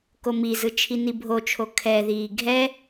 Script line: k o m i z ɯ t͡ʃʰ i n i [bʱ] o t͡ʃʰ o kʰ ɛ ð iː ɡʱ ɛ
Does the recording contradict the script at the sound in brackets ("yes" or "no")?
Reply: no